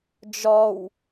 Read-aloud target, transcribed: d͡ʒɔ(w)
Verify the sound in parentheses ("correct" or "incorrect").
correct